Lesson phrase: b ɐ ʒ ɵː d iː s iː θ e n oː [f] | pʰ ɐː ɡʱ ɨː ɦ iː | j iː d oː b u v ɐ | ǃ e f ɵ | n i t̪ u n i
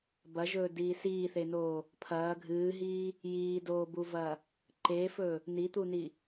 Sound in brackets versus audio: incorrect: none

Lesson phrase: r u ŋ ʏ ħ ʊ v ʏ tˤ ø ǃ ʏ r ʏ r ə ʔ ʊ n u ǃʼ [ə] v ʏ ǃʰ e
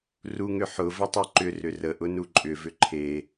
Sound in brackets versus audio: incorrect: ʏ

